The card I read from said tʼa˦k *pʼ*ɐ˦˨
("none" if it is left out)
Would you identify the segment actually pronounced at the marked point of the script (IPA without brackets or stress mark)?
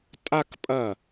pʼ